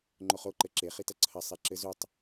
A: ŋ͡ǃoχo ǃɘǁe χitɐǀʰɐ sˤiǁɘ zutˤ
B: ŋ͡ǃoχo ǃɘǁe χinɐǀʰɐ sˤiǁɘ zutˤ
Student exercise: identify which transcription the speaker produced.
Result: A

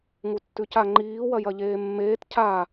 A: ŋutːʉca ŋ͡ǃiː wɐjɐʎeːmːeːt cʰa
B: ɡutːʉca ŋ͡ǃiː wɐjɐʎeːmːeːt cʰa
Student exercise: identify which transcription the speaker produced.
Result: A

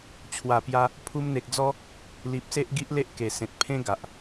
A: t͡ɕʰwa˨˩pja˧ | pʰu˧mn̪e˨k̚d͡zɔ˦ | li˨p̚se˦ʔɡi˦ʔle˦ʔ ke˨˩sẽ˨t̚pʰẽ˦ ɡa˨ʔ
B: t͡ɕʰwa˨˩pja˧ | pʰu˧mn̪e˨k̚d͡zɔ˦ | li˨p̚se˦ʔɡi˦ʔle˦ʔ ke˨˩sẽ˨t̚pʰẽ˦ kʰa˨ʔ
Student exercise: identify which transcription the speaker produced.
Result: A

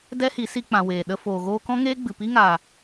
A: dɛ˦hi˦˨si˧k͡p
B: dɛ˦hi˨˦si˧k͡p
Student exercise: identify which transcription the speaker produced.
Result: B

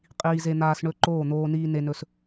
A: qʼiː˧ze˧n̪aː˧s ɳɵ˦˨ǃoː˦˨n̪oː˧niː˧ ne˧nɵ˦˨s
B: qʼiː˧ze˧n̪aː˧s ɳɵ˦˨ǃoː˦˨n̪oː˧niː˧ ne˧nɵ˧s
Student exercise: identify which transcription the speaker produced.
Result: A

